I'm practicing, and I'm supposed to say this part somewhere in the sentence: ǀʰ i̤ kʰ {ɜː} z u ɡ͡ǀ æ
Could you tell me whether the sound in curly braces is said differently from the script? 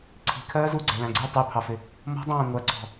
no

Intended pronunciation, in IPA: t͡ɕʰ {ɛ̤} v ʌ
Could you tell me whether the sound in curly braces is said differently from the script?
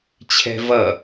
no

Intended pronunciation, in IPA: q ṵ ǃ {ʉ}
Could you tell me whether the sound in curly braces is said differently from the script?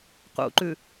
no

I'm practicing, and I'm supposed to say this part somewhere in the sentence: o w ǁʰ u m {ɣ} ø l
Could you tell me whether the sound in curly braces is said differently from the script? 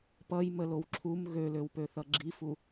no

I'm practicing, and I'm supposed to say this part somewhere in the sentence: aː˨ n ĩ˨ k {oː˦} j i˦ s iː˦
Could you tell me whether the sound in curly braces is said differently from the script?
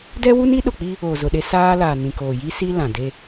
yes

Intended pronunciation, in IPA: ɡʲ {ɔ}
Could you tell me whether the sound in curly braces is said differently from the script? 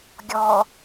no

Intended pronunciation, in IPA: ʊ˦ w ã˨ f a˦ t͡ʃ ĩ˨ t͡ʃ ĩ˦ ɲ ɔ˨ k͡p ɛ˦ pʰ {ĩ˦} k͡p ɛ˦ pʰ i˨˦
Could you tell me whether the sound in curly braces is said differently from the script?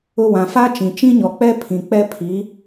yes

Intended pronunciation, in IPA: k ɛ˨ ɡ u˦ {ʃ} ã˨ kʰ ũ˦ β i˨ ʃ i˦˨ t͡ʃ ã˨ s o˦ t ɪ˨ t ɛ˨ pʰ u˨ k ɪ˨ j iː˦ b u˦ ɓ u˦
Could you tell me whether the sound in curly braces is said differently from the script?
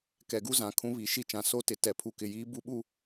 yes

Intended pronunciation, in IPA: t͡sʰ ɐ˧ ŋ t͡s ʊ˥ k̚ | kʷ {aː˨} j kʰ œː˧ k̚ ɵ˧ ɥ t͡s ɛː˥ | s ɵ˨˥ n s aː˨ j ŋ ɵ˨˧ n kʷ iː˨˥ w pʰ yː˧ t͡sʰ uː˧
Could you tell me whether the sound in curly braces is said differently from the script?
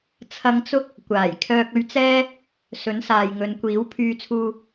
yes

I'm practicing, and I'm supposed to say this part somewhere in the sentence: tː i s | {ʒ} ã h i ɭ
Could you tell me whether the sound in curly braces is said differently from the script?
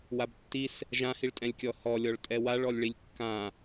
no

